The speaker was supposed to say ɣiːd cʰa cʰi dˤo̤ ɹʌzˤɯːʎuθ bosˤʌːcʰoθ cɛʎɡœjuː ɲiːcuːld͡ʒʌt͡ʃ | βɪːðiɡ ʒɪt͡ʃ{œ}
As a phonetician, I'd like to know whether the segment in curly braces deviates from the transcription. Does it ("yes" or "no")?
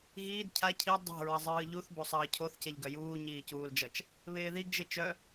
no